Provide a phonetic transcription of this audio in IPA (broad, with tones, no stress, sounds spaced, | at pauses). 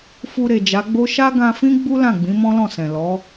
f u˧ ɾ e˨ d͡ʒ a˨˦ ɡ͡b o˦ ʃ a˦ ɡ ã˧ f ĩ˦ ɡ͡b u˦ l ã˦˨ ɡ͡b ĩ˨˦ m ɔ̃˦ l ɔ̃˦˨ s ɛ̃˨ l ɔ˨˦